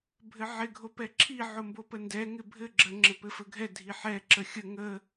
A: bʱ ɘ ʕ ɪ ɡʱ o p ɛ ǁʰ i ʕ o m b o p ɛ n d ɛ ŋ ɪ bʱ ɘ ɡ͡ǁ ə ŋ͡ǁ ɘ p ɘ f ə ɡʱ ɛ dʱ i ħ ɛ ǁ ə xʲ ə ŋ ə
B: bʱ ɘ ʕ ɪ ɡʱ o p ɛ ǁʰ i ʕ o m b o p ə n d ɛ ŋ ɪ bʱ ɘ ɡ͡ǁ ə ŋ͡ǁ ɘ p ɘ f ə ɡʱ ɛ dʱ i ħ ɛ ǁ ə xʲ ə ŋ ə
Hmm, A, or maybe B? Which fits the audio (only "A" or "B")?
B